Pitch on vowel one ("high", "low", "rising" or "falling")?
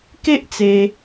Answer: high